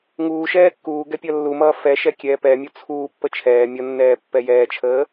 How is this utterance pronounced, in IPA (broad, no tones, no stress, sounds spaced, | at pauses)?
ŋ uː ʃ ɛː kː uː ɡ ɛ pʲ ʌ lː u m ʌː f ɛ ʃ ɛ kʲ ɛː p ɛ mʲ u t͡sʰ uː pː ə t͡ʃʰ ɛː mʲ ʌ nː ɛː pː ɛ j ɛː t͡ʃʰ əː